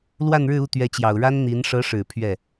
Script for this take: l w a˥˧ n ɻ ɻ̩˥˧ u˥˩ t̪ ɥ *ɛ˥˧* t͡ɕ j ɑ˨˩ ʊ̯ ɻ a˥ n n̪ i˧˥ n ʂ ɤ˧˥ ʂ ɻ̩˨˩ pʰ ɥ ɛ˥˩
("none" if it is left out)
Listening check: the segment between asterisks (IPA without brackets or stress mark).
ɛ˧˥